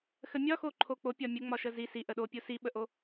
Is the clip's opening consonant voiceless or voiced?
voiceless